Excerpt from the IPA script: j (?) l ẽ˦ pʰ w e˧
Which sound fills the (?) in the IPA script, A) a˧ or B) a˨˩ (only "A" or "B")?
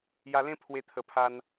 A